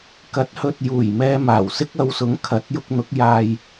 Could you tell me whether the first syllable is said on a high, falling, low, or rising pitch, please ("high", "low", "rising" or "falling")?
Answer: rising